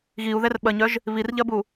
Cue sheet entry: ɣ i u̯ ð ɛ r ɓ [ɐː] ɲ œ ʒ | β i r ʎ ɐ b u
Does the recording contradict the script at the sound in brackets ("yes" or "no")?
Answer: yes